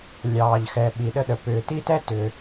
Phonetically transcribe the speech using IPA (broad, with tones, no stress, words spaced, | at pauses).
lʲɑː˩ʎxɛ˩ ɓi˩ɗə˧ɗə˩ pʏː˩ti˧tɛ˧ tʏ˩